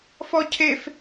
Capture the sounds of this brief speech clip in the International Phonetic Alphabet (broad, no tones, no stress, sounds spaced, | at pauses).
f ɔ cʰ e f